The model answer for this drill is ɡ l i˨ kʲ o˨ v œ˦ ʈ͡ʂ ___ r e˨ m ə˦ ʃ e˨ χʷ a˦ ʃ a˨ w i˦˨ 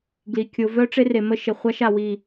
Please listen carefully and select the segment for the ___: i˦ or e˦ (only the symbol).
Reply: e˦